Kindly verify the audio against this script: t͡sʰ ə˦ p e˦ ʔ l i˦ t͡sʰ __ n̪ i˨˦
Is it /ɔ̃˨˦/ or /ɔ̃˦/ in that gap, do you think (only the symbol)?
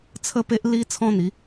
ɔ̃˦